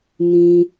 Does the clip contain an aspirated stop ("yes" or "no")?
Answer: no